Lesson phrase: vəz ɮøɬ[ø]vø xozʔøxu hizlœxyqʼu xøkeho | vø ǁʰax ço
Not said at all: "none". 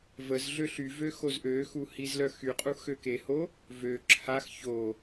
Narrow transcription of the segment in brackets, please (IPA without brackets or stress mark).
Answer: y